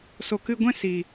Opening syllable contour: low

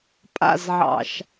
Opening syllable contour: falling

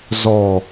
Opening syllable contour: low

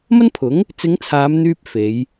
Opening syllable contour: high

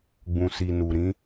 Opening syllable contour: low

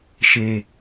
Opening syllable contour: low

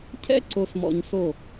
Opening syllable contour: high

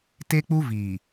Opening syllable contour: high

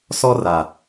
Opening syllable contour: high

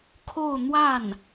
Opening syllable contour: falling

